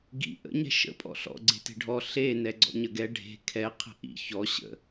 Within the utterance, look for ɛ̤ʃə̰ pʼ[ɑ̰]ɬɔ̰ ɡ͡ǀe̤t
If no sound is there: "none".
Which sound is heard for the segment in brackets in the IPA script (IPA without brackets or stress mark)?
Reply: ɔ̰